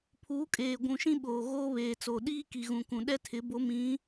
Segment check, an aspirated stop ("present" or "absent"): present